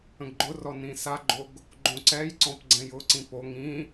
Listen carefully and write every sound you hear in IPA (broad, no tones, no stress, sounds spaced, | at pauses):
ə̃ ɡ ɡ͡ǃ ʊ r ɔ n ĩ s a ɡ͡ǃ o ɡ | ɡ͡ǃ õ ǀ ɛ j ǀ ɔ̃ p ɡ͡ǀ ɛ̃ j ʊ ǀ ĩ p o ŋ ĩ